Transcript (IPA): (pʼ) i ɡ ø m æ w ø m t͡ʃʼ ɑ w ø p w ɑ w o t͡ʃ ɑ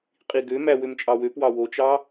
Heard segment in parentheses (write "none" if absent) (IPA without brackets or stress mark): qʼ